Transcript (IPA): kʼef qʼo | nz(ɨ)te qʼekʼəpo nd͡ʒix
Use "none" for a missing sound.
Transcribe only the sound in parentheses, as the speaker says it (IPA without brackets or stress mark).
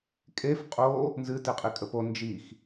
ɨ